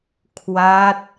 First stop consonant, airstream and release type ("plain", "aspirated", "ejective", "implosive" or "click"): aspirated